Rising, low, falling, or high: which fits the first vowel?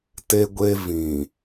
high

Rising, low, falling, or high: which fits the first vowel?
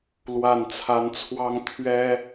low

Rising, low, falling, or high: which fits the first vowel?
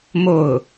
falling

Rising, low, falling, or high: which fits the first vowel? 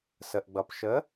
low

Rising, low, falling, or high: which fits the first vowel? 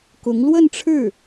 rising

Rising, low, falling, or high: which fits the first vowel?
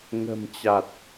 low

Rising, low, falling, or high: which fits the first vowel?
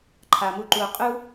low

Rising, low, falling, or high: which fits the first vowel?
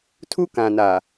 high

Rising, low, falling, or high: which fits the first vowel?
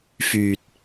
low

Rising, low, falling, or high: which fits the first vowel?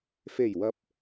low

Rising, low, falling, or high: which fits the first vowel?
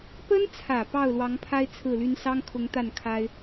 high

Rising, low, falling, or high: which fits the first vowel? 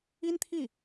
high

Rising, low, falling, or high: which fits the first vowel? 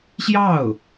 falling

